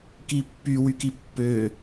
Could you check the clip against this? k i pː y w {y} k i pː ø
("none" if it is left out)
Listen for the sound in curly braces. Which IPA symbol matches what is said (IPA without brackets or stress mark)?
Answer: y